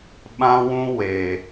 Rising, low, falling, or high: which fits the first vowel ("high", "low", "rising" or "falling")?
high